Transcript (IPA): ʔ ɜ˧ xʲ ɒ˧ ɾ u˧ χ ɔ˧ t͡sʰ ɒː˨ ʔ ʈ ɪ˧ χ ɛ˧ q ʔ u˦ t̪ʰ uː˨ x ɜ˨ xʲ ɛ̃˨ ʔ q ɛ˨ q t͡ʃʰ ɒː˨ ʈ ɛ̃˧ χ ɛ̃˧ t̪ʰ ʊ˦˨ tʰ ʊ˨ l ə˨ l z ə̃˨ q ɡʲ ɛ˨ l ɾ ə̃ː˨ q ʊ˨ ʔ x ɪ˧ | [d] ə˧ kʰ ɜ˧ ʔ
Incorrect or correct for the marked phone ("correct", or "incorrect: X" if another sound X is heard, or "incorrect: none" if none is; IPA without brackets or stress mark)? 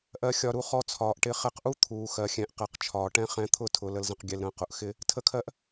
incorrect: tʰ